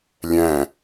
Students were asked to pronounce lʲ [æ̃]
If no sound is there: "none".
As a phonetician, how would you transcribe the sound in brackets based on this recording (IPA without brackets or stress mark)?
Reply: æ̃